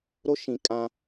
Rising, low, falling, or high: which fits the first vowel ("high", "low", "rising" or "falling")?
high